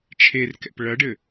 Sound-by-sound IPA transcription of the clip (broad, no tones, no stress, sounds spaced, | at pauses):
t͡ʃʰ e r k ɛ̰ p ɭ ɐ ɖ ɘ